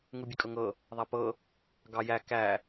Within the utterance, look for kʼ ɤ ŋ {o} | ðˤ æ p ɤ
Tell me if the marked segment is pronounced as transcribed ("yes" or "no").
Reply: no